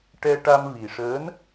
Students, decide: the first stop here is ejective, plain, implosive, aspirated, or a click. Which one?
plain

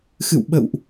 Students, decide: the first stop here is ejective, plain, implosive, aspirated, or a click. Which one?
implosive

